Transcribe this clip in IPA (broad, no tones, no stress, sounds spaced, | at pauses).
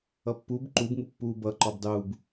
ʌ pː u b ǃ u b ŋ u pː uː b ʌ ǃ ɔ b dˤ uː b